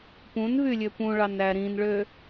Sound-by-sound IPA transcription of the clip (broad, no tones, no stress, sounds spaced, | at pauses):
p ũ n v y lʲ ø p ũ ɭ ɑ n æ ɾ ĩ n ɭ ø